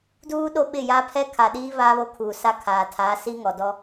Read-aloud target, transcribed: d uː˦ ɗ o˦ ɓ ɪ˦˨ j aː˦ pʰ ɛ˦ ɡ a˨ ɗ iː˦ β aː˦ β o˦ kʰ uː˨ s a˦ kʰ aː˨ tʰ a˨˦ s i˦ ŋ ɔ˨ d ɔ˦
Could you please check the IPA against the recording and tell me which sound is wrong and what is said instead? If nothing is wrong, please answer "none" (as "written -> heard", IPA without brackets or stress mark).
ɡ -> kʰ